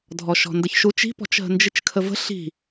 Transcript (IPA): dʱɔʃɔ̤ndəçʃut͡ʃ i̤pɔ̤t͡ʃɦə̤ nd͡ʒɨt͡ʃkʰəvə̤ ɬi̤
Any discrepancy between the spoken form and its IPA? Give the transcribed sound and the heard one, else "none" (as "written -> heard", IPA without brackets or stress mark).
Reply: none